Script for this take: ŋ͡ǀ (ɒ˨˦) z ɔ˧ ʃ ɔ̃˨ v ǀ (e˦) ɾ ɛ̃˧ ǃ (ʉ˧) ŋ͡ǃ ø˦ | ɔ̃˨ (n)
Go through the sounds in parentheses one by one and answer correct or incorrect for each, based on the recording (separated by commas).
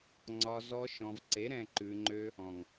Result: incorrect, incorrect, correct, incorrect